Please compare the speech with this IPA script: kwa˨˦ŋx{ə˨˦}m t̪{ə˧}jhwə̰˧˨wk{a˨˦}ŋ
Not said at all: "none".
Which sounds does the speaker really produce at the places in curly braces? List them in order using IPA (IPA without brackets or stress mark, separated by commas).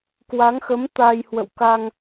ə˨˦, a˧, a˧